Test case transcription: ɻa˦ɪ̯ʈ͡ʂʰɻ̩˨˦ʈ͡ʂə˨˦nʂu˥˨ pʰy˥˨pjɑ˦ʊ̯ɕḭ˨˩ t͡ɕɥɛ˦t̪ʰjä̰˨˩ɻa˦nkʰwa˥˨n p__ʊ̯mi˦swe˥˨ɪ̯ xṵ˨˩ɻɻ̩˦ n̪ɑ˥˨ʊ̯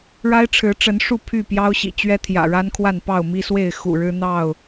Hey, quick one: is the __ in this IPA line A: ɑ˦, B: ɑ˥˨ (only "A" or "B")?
B